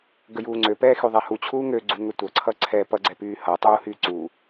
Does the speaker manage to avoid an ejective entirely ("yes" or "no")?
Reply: yes